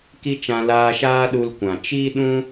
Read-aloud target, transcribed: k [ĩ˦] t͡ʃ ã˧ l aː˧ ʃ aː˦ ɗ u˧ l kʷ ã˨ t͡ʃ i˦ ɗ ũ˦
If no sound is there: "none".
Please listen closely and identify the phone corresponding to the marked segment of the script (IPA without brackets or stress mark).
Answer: i˦